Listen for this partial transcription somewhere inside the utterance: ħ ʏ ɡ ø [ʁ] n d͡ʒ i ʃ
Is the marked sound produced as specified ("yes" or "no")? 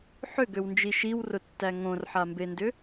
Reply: no